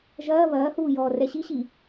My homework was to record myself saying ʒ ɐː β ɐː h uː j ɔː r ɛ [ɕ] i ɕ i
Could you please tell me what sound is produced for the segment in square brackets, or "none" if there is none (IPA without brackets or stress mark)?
ɕ